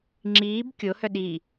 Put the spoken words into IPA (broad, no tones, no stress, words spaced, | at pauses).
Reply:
ŋ͡ǁiːb kʲohœ ɗi